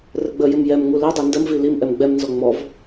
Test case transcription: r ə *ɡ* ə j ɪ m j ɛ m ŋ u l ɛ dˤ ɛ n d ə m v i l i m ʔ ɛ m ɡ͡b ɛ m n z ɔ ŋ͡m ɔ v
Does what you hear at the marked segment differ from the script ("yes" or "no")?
yes